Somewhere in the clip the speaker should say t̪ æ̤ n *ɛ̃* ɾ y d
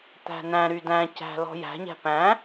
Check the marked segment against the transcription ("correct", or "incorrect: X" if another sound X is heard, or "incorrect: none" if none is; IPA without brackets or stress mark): incorrect: æ̃